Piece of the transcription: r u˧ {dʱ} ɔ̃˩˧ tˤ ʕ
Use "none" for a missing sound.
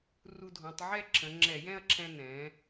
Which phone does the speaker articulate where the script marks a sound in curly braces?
dʱ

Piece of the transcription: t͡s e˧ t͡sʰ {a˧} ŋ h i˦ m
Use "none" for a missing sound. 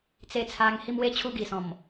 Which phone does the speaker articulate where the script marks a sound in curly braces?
a˧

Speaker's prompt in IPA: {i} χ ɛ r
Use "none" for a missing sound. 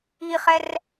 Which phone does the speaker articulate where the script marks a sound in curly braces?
i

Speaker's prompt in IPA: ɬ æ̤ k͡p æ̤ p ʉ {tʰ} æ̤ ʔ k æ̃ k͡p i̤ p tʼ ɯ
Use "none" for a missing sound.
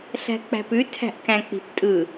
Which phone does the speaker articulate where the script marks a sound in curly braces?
tʰ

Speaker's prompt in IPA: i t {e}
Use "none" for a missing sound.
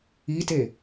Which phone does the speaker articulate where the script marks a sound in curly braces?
e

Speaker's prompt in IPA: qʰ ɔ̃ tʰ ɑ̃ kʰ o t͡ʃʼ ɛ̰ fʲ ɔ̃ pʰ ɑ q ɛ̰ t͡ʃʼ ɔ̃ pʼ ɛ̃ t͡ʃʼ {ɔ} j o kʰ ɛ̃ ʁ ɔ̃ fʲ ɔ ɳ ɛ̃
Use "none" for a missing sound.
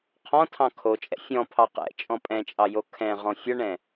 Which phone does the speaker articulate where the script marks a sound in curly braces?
ɑ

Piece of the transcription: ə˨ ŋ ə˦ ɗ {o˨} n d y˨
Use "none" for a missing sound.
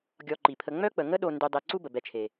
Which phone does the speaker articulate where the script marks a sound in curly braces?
o˨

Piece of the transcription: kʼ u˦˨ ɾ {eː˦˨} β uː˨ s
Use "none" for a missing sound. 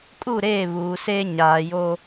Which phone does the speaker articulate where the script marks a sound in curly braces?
eː˦˨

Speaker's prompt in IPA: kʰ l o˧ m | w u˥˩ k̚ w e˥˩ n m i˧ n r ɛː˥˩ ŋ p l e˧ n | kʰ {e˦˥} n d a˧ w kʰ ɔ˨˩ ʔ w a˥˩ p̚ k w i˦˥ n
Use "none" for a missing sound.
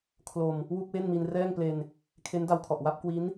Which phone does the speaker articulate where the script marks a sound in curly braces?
e˦˥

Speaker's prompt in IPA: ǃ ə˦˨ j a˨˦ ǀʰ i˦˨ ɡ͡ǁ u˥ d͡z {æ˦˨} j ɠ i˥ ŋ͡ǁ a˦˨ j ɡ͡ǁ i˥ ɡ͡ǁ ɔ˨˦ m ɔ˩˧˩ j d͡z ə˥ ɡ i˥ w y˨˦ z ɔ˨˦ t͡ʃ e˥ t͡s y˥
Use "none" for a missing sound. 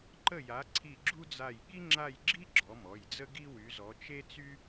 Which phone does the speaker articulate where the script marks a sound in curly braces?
a˦˨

